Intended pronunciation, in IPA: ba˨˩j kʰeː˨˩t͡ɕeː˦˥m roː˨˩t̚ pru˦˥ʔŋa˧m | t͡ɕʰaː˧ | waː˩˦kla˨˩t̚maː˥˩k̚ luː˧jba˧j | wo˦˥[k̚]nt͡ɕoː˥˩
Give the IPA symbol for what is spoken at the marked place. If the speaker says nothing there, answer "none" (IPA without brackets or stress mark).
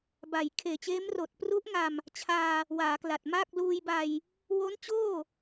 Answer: none